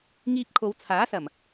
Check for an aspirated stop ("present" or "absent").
present